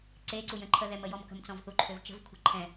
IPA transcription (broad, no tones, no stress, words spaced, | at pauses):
ǀeǀujə̃ ǃʰəðɛmə jɔmkə̤mt͡sɔ̃vθu ǃʰøvt͡ʃə̤vkʷʰə̤ ǃʰɛ̃